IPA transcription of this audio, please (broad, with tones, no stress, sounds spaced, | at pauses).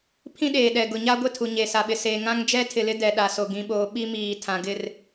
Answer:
pʰ ĩ˦ ɗ eː˨ ɗ ɛ˨ ɡ ʊ˨ ɲ a˦ ɡʷ ɪ˦˨ tʰ u˨ ɲ e˨ s a˨ ɓ ɪ˨ s eː˨ ŋ ã˦ ŋ d͡ʒ ɛ˦ tʰ ɪ˨ l ɪ˦ d ɛ˨ ɗ a˨ s o˨ ɡ ĩ˨ ɓ oː˨ ɓ i˦ m iː˨ tʰ ã˨ ɡ ɪ˦˨ r